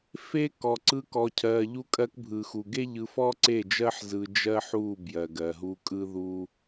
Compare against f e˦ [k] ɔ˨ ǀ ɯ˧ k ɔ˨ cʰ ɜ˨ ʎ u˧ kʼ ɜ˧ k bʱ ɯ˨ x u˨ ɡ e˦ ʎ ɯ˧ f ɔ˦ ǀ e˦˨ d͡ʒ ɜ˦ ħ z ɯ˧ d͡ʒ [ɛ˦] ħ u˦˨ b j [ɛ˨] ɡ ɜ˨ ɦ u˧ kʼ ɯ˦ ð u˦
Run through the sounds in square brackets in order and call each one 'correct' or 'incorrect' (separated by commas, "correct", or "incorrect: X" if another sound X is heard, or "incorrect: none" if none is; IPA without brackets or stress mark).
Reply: correct, incorrect: ɜ˦, incorrect: ɜ˨